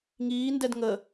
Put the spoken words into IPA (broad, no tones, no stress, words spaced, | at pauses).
ŋiːndɛd ŋə